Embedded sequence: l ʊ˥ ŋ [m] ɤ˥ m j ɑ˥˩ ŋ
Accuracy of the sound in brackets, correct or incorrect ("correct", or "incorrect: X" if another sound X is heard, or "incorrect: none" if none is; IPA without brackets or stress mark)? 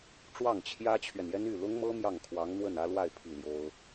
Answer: correct